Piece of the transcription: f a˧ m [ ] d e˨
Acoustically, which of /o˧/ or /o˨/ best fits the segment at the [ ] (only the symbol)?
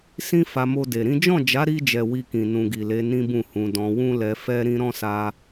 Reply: o˧